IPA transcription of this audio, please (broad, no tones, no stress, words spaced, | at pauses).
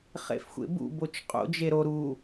χḛfxʷḛbṵ bot͡ʃqʼo̰ d͡ʒeɾo ɾu